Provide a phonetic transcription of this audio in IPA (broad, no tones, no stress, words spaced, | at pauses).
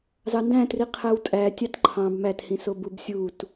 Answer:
zɑndæ̃tri qʰæwtʼæ tʲɑtǃʰɑ̃b mæthĩ sobubsʲut